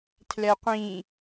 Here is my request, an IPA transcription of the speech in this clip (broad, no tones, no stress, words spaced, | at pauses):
tʰlɛqʷĩ